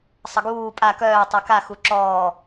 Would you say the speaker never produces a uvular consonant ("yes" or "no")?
yes